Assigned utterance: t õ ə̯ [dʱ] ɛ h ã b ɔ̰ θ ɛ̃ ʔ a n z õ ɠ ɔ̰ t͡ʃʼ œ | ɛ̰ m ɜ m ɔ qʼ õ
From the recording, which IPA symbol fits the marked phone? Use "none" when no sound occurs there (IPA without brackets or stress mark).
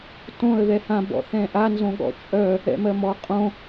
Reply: ð